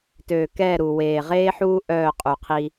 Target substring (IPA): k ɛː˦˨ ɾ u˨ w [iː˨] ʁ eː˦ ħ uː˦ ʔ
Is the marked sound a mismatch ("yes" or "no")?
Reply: yes